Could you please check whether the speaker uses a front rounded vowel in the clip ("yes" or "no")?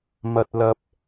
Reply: no